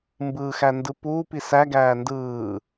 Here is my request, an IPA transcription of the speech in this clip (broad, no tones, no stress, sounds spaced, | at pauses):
m b ɯː x æ n d ɯ p uː p i s æ ɡ æː n d ɯː